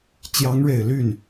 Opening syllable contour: rising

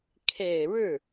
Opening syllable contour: low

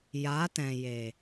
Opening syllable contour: rising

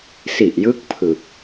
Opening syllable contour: low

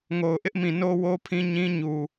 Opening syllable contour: low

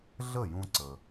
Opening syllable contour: falling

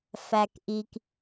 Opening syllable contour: low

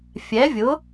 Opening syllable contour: rising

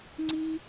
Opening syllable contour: high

